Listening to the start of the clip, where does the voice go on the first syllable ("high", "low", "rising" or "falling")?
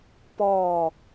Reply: low